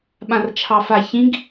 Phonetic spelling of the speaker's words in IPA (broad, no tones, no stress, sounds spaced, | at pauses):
ɓ ã r t͡ʃʰ ɑ f a ç ĩ ɡ